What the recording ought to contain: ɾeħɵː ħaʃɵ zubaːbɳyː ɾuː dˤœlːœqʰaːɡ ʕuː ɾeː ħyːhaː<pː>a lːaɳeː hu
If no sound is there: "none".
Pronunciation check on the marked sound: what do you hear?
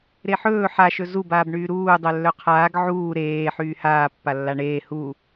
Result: pː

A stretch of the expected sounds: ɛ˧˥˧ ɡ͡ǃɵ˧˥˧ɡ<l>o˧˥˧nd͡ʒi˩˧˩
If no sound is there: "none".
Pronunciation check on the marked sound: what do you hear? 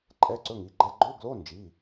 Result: l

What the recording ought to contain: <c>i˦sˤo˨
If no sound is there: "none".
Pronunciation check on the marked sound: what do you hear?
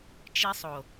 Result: t͡ʃ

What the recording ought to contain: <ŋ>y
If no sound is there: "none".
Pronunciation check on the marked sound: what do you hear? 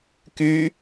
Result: k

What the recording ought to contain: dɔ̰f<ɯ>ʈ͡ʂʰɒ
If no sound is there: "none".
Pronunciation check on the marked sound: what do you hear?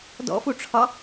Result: u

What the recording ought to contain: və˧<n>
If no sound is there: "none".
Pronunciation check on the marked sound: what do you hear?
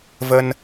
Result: n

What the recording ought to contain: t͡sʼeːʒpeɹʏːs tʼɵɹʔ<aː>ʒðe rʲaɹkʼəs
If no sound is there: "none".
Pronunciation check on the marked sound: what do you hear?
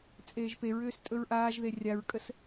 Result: aː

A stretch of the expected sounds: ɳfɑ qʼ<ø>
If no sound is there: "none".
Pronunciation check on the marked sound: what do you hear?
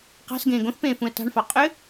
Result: ø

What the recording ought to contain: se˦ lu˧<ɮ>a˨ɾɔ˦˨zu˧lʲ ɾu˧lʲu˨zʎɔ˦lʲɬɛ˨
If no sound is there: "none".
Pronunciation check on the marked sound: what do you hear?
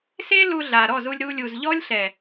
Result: ɮ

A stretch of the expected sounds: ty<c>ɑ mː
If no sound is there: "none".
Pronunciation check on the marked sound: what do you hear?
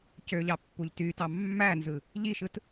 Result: t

